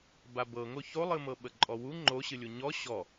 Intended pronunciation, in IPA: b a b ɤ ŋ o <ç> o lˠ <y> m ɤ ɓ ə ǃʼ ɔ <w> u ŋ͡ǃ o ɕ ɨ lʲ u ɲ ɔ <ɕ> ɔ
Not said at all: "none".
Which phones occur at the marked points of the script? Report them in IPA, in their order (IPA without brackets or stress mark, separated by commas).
ç, ɨ, w, ɕ